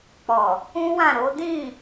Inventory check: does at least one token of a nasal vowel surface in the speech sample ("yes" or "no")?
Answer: yes